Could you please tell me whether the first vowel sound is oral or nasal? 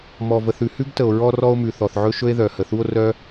oral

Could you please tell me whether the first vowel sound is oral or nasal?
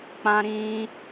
nasal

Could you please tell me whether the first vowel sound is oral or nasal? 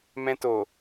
nasal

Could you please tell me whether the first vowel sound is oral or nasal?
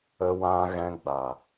oral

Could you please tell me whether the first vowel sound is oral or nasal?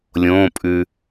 nasal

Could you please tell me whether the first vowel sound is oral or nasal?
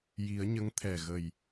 oral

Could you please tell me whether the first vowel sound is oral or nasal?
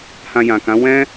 nasal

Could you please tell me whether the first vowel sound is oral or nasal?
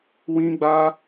nasal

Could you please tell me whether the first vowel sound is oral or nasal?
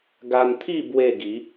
oral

